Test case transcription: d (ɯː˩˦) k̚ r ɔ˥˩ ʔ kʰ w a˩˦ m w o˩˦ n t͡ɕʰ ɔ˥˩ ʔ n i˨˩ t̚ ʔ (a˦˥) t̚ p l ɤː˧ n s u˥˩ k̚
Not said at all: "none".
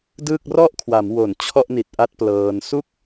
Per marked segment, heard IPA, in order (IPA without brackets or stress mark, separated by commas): ɯː˥˩, a˦˥